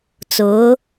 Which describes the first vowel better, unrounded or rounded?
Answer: rounded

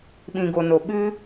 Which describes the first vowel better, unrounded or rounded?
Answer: unrounded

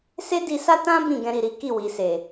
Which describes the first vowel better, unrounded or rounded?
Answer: unrounded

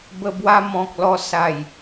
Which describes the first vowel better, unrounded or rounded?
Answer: unrounded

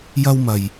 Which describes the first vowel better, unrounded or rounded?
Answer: unrounded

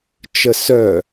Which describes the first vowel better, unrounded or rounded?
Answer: unrounded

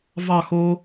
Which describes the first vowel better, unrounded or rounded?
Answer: unrounded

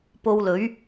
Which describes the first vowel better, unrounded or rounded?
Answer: rounded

